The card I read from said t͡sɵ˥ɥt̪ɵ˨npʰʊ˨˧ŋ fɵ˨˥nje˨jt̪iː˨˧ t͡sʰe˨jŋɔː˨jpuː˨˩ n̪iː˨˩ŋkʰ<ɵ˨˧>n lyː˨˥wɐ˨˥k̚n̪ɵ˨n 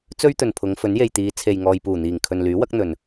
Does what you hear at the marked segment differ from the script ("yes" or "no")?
yes